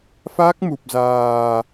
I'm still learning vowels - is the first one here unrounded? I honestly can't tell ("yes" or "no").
yes